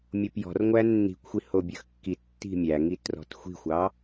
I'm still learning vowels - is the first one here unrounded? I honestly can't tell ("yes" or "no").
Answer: no